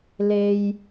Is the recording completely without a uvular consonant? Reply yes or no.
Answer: yes